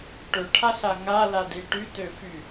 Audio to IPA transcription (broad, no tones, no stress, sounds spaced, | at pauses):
ʈ ø ʈʰ a ɬ a ŋ a l a d i ʈ y t ø f y